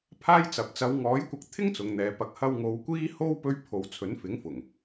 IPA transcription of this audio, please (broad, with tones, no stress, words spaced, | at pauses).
pʰaː˥jt͡sɐ˨p̚ t͡sɐ˨˧wŋɔː˨˥jkʷɐ˧k̚ t̪ʰɪ˥ŋ t͡sʊ˨˧ŋn̪ɛː˨˧ pɐ˨˥k̚ hɐ˧wŋo˨˧wkʷiː˥ ho˥w pɵ˥ɥ pʰo˨˧w t͡sʰɵ˨˥nfɪ˨˥ŋfʊ˨˩ŋ